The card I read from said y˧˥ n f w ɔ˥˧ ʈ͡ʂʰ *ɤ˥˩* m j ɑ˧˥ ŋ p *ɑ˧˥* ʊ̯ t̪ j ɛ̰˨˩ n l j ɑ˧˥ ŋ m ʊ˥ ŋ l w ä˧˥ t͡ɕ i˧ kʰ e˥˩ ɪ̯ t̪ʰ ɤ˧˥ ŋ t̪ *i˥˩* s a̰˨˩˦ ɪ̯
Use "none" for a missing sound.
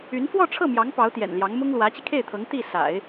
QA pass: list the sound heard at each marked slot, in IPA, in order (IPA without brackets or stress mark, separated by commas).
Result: ɤ˥˩, ɑ˧˥, i˥˩